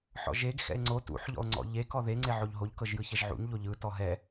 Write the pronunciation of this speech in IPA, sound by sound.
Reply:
ħ ɔ̰ ʒ e ɡ x ɛ̰ e̯ ŋ͡ǀ o t ṵ ħ ʎ ɔ̰ o̯ ŋ͡ǀ ɔ̰ ʎ e k ɔ ð e ŋ͡ǀ e ʕ o ʎ ɦ o ʎ k ɤ ʒ j ɯ ç ɛ ʒ ʕ ṵ ɲ ʎ o ʎ ɯ t ɔ ɦ ɛ

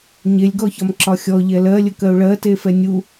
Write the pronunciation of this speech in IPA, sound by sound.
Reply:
ɲ e lʲ ɡ ɔ ç ɒ m ǁ ɒ xʲ ɔ ʎ ɛ l ɜ lʲ ə k ɜ ʊ̯ ɭ ɜ t e f ɛ nʲ u

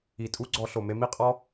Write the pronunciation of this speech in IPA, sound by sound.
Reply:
i˨ tʼ u˦ ɡ͡ǀ ɔ˧ ɬ o˨ m e˧ m i˦ qʼ ɔ˦

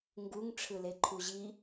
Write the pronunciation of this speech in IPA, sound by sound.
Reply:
ŋ ɡ u ŋ ʈ͡ʂʰ ɯ l e ǃʰ u ʑ i

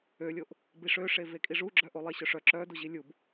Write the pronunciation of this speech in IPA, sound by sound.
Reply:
ø lʲ o ʔ | b i ʂ ø ʂ e v e kʼ i ʐ u ɡ͡ǁ œ ʔ o lˠ e ɕ œ ʂ œ ǁ œ d u ʑ i lʲ u b

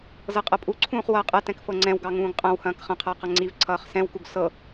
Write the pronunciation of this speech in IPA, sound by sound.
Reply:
z ɤ qʼ ɤ pʼ u ǀʰ ũː χ w ʌː qʼ ɐ t ɛ̃ k f ɤ ŋ͡ǀ ɛ̃ w ɡ ɑ ŋ ũː ɡ qʼ ɐ̃ w h ɐ̃ː k χ ɐ̃ qʰ ʌː q ɐ ŋ͡ǀ i v ǀʰ ʌː χ s ɛ̃ w k u ɡ s ɤ

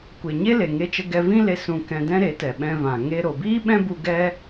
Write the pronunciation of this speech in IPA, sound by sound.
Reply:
kʷ e˨ ɲ e˦ l e˨ ŋ e˧ t͡ʃ ə˧ ɡ ɛ˧ v ĩ˦ l e˧ s ũ˧ k ɛ̃˧ d ɛ̃˦ ɾ e˨˦ t ɛ˨ ɓ ɛ̃˧ v ã˨ ŋ e˦ ɾ o˨ b iː˦ ɓ ɛ̃˦ b u˧ ɡ ɛ˦

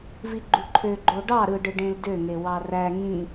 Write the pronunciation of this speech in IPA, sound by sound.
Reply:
v i ɡ͡ǃ u ǃʰ ø ɡ͡ǃ o ɖ ɑ ɾ ɯ ɖ ɯ ɖ ẽ l d ø ŋ e w ɑ r æ ŋ ĩ

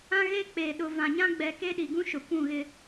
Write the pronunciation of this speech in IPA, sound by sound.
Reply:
ã˦ ɣ eː˦ k͡p eː˨ ɗ ʊ˨ v ã˨ ɲ ã˦ ɡ͡b ɛ˨ k e˦ ɗ i˨ ɡ ũ˦ ʃ ʊ˨ kʷ ũ˦˨ ɣ ɪ˦

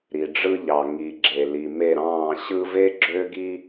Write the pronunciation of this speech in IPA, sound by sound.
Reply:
ɾ i˨ ɖ͡ʐ ɯ˧ ʎ ɑ˨ ŋ i˨ ɡ͡ǁ e˨ l i˨ m e˦˨ ɾ ɑ̃ː˦˨ ɕ ɯ˧ v e˦ ɡ͡ǁ øː˦ ɡ i˦

